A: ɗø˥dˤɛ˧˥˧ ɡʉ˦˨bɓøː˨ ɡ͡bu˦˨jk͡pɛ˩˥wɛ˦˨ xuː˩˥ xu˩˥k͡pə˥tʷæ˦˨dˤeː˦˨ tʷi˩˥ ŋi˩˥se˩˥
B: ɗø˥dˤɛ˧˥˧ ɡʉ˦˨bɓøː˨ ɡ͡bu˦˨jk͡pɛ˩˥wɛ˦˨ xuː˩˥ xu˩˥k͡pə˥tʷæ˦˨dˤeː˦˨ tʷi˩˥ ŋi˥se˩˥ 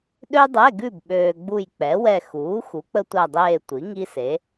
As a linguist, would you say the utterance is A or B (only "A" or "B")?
B